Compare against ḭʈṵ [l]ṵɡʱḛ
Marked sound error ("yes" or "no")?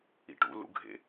no